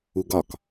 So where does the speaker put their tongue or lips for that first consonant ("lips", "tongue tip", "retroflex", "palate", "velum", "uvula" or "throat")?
velum